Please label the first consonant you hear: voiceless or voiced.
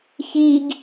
voiceless